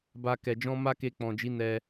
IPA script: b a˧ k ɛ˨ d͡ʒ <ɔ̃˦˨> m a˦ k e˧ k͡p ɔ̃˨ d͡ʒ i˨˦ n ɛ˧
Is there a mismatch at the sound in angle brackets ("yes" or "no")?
yes